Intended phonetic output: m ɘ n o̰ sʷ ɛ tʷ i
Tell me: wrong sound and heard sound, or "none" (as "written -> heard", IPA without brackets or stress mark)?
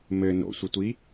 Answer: ɛ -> ə